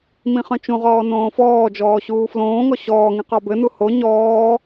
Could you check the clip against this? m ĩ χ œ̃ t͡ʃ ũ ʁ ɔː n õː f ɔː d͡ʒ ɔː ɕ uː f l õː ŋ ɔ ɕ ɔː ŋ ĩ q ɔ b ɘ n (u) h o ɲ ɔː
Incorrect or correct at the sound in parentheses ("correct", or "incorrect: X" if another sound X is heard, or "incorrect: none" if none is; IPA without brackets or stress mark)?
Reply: correct